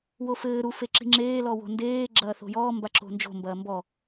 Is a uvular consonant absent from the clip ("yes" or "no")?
yes